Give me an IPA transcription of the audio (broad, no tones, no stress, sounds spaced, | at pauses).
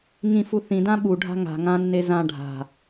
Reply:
ŋ ĩ f u θ ĩ d ã ɓ u ɖʱ a̤ ŋ a̤ ŋ ã nː e z ã ɖʱ a̤